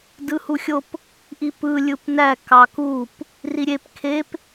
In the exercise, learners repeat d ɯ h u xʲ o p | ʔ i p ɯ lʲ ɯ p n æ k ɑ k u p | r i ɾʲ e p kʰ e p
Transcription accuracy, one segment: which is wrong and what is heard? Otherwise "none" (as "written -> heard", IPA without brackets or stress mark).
none